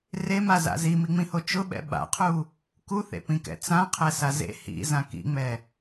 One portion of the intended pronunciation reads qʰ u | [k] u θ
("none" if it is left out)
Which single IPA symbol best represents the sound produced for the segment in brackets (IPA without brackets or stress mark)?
k